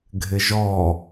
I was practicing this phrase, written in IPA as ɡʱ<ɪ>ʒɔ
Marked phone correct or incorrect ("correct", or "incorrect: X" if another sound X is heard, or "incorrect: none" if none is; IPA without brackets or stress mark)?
correct